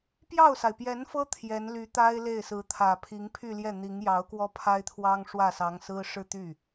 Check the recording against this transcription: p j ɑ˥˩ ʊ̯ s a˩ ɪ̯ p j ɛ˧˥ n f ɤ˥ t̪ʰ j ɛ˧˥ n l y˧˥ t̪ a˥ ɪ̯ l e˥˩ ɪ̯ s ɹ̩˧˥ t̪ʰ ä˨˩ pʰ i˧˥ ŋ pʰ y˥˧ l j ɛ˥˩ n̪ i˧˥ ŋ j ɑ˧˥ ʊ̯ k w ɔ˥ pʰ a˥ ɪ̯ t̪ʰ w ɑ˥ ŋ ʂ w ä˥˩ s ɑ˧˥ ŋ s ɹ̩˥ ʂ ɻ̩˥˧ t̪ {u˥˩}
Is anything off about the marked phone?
yes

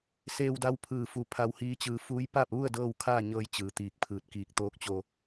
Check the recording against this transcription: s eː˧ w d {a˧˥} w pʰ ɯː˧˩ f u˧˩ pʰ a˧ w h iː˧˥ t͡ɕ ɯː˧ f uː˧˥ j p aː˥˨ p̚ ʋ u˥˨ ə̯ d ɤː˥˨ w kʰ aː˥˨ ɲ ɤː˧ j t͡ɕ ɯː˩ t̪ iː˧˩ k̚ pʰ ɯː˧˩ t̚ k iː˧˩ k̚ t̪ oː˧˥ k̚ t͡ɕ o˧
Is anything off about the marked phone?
no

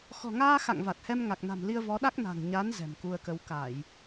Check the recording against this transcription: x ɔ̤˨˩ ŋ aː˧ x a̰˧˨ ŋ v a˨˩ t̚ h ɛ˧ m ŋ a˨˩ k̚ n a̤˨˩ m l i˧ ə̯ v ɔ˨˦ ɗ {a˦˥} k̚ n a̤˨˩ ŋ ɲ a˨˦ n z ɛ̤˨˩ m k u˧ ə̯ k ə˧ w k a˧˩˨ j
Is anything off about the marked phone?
no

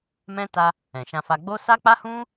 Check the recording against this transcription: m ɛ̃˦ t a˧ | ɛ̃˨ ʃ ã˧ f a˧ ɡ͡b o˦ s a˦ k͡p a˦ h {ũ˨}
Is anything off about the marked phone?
yes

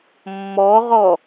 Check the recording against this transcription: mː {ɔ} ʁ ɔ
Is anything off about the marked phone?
no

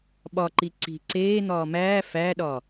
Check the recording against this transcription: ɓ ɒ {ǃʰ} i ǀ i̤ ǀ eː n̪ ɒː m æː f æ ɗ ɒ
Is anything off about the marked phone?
yes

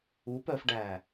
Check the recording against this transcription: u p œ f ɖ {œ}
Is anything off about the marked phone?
yes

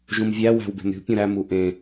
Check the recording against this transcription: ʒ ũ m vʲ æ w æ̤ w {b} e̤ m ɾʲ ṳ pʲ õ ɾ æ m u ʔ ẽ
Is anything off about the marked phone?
no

